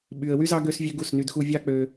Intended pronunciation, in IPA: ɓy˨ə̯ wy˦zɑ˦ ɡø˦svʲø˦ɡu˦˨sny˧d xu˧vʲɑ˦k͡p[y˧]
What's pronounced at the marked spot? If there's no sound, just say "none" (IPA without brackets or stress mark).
ø˧